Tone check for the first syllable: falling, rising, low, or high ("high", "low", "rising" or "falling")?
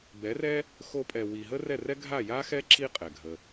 rising